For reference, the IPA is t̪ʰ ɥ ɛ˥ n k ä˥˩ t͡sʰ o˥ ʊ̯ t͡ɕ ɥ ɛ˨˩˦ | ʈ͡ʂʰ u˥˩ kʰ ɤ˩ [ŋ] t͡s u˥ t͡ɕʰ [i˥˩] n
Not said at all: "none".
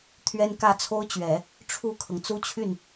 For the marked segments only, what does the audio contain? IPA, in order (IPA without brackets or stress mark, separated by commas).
ŋ, y˥˩